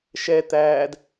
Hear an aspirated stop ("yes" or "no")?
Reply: no